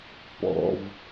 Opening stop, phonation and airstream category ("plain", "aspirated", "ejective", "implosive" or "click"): plain